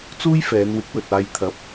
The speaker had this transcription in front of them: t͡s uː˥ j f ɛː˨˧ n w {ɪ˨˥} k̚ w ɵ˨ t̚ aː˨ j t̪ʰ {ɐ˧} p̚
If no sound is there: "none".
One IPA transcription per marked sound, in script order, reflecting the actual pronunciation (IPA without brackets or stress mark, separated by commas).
ɪ˨˥, ɐ˨˥